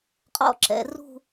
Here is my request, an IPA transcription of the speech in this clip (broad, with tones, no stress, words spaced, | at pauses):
qʼɔ̰˦˨ǁɛ̰˨ rṳ˦˨